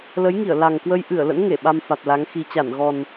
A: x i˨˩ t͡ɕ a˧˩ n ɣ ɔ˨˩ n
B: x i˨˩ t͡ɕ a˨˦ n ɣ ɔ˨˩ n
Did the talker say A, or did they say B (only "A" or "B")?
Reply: A